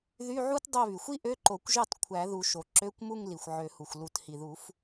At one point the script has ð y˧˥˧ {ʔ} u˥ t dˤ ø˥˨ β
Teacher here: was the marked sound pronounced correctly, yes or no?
no